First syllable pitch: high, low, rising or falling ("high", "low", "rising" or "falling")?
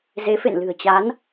rising